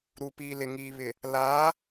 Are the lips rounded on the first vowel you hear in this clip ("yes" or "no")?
yes